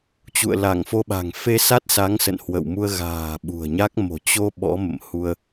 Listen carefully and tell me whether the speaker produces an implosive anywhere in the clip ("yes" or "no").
yes